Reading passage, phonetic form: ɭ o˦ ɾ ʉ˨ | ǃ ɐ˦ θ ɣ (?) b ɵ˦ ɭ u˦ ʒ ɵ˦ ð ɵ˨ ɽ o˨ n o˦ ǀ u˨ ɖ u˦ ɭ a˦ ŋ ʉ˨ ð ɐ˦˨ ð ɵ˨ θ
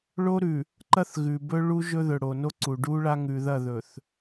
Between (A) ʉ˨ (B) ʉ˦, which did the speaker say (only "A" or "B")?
A